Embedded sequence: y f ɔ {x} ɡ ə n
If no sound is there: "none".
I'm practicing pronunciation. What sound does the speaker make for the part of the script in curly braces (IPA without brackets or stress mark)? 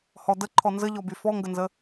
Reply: ŋ